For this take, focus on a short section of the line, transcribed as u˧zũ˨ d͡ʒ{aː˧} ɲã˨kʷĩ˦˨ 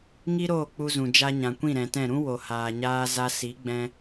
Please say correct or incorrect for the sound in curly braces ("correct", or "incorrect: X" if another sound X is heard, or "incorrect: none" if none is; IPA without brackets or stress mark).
incorrect: a˧